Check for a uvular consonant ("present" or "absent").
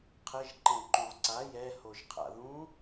present